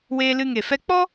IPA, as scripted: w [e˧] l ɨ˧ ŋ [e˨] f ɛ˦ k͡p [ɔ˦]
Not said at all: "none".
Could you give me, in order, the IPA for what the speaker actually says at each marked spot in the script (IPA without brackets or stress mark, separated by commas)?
eː˧, e˨, ɔ˦